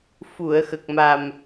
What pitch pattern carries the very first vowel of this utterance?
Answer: low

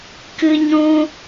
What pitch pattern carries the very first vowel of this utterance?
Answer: high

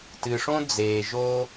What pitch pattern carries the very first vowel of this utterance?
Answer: low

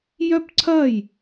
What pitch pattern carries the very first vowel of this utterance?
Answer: falling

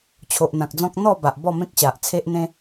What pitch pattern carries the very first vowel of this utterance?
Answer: low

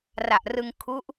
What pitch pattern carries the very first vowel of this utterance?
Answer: low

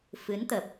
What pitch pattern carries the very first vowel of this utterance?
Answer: rising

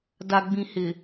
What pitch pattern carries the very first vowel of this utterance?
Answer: low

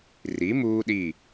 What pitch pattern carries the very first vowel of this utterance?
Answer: rising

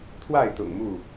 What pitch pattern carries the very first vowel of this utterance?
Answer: falling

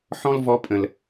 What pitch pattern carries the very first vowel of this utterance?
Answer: high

